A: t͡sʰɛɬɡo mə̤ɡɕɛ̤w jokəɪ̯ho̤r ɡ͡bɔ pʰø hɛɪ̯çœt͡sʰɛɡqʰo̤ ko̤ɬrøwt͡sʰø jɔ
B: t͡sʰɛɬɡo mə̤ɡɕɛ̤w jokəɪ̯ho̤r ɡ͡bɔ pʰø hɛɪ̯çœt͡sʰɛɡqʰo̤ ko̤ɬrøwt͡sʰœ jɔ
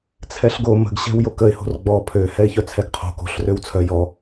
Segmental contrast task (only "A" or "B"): B